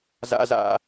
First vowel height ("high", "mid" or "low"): low